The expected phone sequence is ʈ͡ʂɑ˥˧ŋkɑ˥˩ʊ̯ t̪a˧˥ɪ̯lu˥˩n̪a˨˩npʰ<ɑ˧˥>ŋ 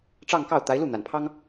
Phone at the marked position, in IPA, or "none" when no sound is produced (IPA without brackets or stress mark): ɑ˥